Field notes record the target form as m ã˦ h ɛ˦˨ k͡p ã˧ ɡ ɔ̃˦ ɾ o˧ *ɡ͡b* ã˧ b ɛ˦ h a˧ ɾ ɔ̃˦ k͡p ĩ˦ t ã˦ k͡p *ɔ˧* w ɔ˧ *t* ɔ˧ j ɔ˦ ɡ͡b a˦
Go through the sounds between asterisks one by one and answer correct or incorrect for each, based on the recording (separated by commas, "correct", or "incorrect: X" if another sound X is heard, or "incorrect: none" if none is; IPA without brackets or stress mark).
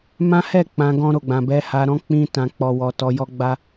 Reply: correct, incorrect: ɔ˦, correct